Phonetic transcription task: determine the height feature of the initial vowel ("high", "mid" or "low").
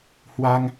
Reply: low